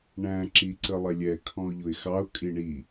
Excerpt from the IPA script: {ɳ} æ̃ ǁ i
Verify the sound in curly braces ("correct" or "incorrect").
correct